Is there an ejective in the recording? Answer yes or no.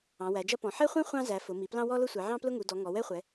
no